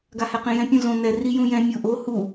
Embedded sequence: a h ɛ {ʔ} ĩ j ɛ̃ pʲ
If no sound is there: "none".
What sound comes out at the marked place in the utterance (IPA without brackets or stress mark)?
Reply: q